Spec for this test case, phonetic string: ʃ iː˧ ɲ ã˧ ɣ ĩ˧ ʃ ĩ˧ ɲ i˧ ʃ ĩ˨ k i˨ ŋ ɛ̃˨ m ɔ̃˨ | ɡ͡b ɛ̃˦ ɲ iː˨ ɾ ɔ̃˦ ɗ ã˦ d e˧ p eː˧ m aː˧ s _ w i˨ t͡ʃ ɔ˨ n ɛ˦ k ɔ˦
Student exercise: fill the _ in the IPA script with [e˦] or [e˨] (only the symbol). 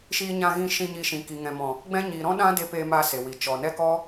e˨